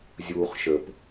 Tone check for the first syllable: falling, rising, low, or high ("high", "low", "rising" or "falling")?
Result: low